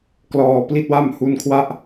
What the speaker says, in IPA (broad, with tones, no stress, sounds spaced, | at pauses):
k l ɔː˧ p l i˥˩ t̚ w a˥˩ m h u˧ n kʰ w a˥˩ ʔ